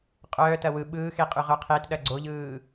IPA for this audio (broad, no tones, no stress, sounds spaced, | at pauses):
qʼ œː t ɐ w ɯ ɓ ɯː x e qʼ y ʁ œ qʰ e t ɗ ɐ ɡ͡ǀ o ʎ ɯː